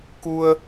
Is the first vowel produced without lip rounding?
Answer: no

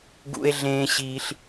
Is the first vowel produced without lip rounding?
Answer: no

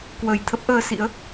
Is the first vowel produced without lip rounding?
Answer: yes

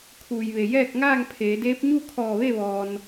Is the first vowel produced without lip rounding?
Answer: no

